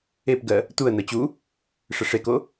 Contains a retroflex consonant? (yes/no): yes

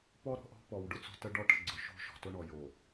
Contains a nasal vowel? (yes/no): no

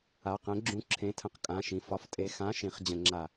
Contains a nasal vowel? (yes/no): yes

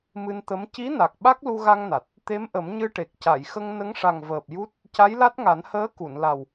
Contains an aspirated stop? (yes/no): no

